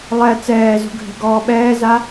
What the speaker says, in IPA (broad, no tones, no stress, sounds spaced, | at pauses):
lˠ ɛ t͡s ɛː z ṳ ɡʱ ɛ̤ ɡ ɔː ɓ ɛː z a